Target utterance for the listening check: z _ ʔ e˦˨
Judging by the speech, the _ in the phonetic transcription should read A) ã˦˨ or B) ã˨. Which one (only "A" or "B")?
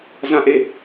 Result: A